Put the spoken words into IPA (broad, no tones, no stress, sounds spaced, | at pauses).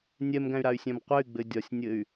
nʲ ɛ m ɡ æ̃ y̯ ɾ a y̯ sʲ æ̃ m qʷ ɛ y̯ ɡ͡b ɘ dʲ ɒ sʲ nʲ ɘ y̯